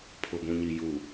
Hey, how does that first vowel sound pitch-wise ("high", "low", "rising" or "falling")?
low